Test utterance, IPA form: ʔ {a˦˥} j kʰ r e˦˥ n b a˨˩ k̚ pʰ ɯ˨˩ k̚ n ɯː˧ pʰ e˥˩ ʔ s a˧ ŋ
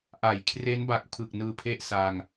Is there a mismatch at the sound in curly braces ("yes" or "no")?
yes